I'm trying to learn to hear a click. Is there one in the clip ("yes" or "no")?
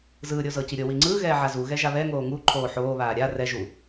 yes